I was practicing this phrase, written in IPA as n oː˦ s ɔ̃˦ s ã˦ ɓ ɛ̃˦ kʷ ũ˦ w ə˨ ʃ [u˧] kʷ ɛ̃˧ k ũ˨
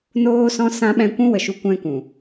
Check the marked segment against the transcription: correct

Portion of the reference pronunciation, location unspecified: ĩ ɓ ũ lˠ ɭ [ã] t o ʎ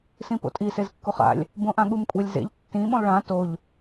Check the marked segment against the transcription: correct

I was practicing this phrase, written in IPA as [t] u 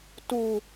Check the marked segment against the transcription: correct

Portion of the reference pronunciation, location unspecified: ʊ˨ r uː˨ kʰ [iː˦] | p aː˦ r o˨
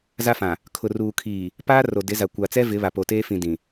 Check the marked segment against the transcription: incorrect: iː˨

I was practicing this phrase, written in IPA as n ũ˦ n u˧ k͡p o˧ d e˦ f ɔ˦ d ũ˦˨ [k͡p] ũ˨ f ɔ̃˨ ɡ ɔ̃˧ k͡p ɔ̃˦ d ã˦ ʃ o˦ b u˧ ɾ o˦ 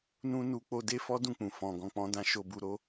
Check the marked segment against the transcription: correct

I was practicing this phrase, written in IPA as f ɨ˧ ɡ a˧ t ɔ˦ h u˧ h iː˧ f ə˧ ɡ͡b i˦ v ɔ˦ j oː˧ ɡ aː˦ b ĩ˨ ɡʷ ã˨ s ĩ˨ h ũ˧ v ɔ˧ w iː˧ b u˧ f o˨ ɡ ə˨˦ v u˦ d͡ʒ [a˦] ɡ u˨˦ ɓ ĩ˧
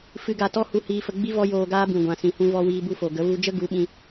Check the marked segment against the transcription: incorrect: ə˦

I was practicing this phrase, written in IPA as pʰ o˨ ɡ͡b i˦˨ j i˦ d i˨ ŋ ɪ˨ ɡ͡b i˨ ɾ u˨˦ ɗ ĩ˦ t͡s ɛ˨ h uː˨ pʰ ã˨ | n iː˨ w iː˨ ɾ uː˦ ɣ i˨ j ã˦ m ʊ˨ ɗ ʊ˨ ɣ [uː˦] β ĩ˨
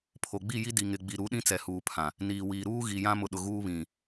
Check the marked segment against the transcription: correct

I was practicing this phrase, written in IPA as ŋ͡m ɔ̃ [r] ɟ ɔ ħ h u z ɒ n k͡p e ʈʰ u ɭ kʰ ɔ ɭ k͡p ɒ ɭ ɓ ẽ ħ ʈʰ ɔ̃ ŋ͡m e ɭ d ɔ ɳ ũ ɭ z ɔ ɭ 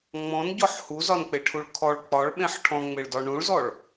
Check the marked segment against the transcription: incorrect: n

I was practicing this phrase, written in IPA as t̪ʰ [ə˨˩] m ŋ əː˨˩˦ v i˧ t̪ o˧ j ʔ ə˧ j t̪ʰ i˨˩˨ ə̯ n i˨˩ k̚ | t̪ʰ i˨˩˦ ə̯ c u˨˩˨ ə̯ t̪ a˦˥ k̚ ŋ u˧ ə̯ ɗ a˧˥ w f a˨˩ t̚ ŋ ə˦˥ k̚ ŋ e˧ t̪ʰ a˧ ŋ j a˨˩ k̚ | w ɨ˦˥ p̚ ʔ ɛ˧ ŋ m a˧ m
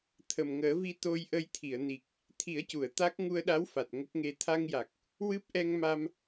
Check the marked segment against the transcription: correct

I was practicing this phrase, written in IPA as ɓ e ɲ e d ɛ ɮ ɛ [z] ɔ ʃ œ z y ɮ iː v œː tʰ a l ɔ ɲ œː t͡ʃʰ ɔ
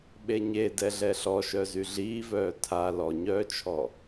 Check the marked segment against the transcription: incorrect: ɬ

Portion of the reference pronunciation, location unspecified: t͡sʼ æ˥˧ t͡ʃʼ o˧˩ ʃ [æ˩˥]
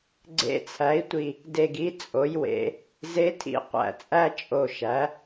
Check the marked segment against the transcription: correct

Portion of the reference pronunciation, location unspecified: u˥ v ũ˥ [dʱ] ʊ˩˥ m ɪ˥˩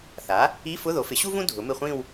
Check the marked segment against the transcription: correct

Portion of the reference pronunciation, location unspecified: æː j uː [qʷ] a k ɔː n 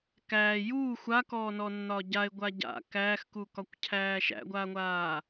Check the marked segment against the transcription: incorrect: xʷ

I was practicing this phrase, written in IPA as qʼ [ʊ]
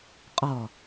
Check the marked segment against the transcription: incorrect: ɔ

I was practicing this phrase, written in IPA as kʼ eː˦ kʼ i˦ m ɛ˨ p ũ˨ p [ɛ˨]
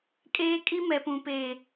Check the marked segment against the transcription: incorrect: e˨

